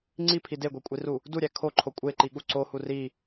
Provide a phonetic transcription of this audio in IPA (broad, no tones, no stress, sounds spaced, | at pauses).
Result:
ŋ͡ǀ i pʰ i d e ɡʷ e kʷʼ i r u | d u ɾʲ æ kʰ o ǃʰ o kʷʼ e ǃ i ɠ u ǀ o h u r i